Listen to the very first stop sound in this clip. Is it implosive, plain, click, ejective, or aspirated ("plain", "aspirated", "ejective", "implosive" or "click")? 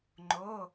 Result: click